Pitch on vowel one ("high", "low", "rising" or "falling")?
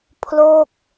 falling